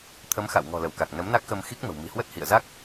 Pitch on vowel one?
rising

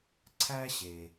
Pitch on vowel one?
high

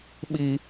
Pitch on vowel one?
high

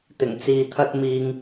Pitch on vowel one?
low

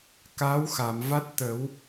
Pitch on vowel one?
rising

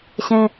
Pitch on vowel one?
high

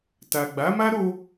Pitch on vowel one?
low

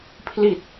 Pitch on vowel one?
low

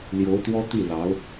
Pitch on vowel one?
rising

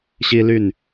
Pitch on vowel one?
high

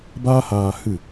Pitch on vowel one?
high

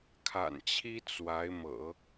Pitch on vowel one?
low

